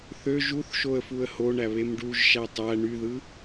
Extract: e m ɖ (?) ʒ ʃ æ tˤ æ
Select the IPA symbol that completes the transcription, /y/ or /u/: u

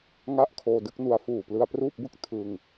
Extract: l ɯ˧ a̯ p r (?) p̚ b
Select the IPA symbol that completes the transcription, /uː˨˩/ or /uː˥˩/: uː˥˩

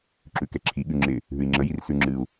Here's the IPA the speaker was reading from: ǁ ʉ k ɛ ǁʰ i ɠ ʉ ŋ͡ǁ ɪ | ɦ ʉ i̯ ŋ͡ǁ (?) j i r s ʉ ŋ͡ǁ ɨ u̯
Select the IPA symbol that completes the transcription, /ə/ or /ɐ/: ə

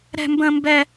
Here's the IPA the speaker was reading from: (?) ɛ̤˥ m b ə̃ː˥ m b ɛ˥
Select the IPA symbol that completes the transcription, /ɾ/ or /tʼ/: ɾ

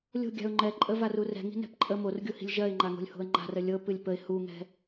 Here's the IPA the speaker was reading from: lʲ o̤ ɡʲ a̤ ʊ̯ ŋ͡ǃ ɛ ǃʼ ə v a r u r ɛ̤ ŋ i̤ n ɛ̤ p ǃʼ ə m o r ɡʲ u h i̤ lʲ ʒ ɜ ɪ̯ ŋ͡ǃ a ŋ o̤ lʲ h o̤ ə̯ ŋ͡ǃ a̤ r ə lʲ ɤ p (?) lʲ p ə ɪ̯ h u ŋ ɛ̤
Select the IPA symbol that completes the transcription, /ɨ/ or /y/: ɨ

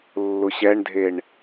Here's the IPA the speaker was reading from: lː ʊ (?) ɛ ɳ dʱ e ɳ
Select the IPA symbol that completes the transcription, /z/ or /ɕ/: ɕ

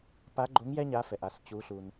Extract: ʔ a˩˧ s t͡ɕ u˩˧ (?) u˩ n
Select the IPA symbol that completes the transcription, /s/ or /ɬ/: ɬ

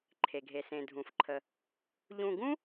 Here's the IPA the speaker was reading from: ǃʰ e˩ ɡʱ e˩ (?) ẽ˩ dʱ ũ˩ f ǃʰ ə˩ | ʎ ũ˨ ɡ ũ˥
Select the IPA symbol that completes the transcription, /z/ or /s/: s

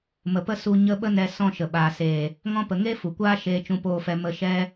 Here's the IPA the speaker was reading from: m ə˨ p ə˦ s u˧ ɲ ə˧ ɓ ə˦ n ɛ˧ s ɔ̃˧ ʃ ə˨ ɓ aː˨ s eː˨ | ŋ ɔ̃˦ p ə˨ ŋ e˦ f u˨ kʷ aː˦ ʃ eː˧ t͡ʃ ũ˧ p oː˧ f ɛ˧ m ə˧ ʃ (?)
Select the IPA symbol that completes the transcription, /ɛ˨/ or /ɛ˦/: ɛ˦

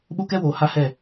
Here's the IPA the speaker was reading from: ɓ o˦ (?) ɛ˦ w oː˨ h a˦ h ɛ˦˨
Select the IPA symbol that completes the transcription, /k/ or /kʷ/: k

